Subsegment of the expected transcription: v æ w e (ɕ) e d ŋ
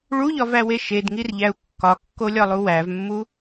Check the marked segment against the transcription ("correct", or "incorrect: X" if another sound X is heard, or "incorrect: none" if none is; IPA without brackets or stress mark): incorrect: ʃ